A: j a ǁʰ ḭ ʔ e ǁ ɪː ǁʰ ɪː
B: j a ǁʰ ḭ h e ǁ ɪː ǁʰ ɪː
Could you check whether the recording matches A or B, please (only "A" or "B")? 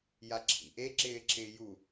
A